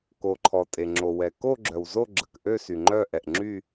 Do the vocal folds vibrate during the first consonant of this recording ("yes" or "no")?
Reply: no